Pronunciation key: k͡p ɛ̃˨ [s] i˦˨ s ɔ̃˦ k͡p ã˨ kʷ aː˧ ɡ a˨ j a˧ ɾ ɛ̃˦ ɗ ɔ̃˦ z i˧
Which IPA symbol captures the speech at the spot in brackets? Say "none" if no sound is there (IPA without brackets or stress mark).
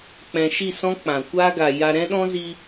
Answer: ʃ